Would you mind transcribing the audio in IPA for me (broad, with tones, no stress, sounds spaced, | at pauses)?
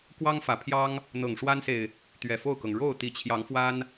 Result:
k w ɑ˦ ŋ f ä˨˩ pʰ j ɑ˦ ŋ | n̪ ɤ˨˩ ŋ ʂ w a˦ n s e˨ ɪ̯ | t̪ ɥ ɛ˨˩ f o˥˨ ʊ̯ k ɤ˩ ŋ ɻ o˥˨ ʊ̯ t̪ i˨˩ t͡ɕʰ j ɑ˨˦ ŋ f w a˦ n